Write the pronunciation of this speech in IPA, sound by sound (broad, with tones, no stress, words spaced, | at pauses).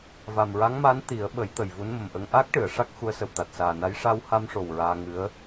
va˨˩mɹa˧˥ŋmaː˧˥n t̪i˨˩˦ə̯ ɓə˨˩˦j t̪ə˨˩jvu˧˥nmə˨˩mʔə˧ŋ ʔaː˦˥k̚ʈɨ˨˩˨ə̯ ʂa˦˥k̚xu˧˥ə̯sə˨˩w t̪a˨˩t̚saː˨˩na˧˥j ʂa˧wha˧mʂo˨˩w ɹaː˧ ŋɨ˧˥ə̯